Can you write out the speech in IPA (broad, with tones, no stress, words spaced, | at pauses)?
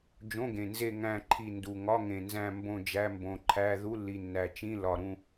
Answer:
d͡ʒõ˧˥˧ɡẽ˨˩nze˦˨ ŋæ̃˦˨ǃʰi˦˨ndu˨˩ ŋɒ˧˥˧ŋẽ˨˩nzæ̃˦˨ mbõ˦˨d͡ʒæ˧˥˧mbõ˨˩ǃʰæ˧˥˧ ðu˧˥˧lːi˨˩ nːæ˨˩ t͡ʃĩ˧˥˧ lɒ˨˩ɾũ˦˨